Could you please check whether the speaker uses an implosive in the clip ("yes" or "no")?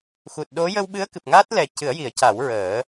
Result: yes